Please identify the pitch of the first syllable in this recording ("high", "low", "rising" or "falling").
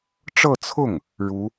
falling